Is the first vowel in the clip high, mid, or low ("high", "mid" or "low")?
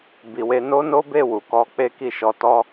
high